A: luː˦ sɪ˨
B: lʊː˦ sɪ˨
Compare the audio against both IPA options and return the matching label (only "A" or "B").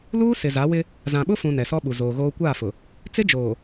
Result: A